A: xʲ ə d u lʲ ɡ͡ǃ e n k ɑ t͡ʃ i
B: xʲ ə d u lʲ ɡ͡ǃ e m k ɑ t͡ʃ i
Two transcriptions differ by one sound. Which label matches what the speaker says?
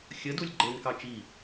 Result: A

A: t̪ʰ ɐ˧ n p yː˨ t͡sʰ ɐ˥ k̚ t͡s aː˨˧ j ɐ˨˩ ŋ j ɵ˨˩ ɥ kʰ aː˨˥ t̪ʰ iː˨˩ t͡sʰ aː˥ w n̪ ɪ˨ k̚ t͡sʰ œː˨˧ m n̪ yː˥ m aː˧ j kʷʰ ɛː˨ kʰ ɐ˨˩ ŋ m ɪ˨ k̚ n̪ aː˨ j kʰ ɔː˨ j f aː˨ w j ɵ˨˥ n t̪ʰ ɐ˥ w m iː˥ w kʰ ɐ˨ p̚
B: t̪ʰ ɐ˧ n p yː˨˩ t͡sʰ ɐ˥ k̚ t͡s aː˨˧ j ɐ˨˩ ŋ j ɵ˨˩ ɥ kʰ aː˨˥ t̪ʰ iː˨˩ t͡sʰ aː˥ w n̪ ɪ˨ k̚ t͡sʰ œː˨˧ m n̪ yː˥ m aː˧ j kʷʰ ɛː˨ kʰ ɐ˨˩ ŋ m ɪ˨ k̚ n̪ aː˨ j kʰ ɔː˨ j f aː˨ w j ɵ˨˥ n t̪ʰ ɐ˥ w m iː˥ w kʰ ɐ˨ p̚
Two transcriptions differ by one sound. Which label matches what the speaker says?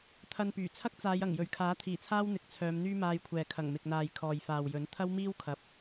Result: B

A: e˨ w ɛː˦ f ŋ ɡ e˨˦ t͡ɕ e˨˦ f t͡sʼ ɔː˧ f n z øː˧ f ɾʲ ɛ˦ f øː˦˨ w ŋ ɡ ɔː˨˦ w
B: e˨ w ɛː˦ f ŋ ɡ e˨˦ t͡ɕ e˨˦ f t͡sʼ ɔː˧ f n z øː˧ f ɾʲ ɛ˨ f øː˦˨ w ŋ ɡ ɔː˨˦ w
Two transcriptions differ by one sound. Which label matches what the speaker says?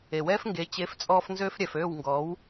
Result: B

